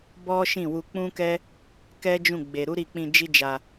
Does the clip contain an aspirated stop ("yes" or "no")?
no